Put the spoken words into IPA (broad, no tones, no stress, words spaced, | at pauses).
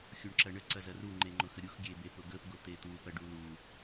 xʲuɳǁɐɳə ǀɐzɐru ŋ͡ǃeŋ͡ǃʊxəɾʲux ɡʲebepʊɡəp ɡʊt̪et̪u pɐɖulu